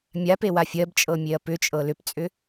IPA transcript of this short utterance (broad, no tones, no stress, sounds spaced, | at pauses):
mʲ a p e w a fʲ ɜ b t͡ʃʼ ɤ mʲ e ɐ̯ p ʏ t͡ʃʼ ɤ l ʏ p t͡sʼ ʏ